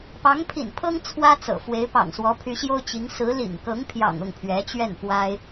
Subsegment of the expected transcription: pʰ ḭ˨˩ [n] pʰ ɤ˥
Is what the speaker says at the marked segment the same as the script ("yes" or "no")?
yes